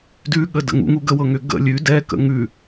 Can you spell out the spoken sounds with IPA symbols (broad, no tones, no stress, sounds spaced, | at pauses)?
d ʉ ɠ ə d ə̰ ŋ ṵ ŋ u ɡ ə w ɤ ŋ ʏ ɡ ə̰ lʲ ʉ d ɛ k ə̰ ŋ ʉ